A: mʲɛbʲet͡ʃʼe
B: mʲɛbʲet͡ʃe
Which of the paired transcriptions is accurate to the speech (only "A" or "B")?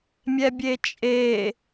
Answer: A